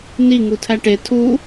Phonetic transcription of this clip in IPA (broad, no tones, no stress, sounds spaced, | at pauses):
n i ŋ u tʰ æ ʈ e tʰ u